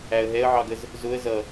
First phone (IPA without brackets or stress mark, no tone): æ